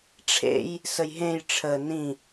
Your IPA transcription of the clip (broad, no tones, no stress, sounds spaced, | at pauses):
ʈ͡ʂʰ ḛ j | s ə j ɦ ẽ j ʈ͡ʂʰ ə n ĩ